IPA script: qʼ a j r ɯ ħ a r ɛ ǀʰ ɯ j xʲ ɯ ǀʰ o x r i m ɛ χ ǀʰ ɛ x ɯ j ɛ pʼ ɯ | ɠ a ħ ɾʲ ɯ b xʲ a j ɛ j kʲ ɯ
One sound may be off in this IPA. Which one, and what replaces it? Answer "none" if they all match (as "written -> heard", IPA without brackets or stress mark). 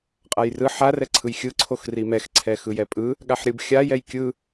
χ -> x